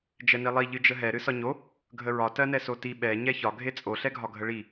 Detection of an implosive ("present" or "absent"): present